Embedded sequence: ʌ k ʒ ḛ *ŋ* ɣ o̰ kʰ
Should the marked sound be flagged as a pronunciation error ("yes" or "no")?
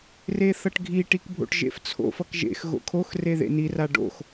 yes